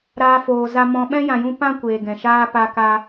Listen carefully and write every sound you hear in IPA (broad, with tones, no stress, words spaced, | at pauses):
ɾaː˧foː˨ za˧mɔ̃˧ ɓɛ̃˦jã˨jũ˧ pã˦ kʷeː˨ɡɛ̃˨ ʃaː˦pa˧ka˧